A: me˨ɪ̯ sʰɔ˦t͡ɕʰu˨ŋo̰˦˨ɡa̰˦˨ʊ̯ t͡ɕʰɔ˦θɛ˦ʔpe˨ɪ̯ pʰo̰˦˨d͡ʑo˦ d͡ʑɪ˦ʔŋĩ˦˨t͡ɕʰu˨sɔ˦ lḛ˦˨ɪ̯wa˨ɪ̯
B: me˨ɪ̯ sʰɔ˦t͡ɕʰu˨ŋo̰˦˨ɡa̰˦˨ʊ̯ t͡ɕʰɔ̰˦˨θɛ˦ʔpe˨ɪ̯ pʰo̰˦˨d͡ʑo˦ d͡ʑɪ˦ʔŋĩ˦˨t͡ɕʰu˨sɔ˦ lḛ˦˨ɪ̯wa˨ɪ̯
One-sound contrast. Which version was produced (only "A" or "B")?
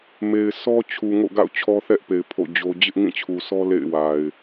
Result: A